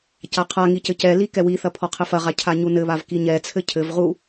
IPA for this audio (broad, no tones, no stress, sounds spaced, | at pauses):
c a qʰ a ŋ i c ɘ c ɛ l i k ɛ w i θ ɐ pʰ ɔ qʰ ɘ f ɐ ʁ a cʰ a ɲ u n ɘ β a v k i ɲ ɛ t͡sʰ ɘ cʰ ɘ v ʁ u